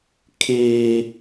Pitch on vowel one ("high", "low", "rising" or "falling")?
high